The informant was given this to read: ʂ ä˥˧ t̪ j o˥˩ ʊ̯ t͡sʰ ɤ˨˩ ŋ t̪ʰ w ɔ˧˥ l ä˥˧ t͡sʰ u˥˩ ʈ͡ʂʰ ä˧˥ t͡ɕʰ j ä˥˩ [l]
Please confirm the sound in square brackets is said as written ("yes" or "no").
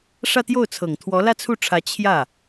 no